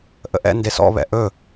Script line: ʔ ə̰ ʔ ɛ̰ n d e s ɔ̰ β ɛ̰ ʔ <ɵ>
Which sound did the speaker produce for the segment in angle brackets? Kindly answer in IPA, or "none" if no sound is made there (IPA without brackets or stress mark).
ɵ